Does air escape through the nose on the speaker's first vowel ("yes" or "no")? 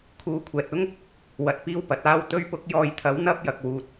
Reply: no